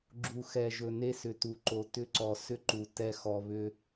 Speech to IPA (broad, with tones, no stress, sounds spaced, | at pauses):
ɡ͡ǁ u˨ x ɛ˨ ʒ ɵ˨ n e˦ s ʏ˨ t u˨ ǃ o˨ t ʏ˦ ǀ ɔ˨ s ʏ˦ ǃ u˨ t ɛ˦˨ x ɔ˨ β ʏ˦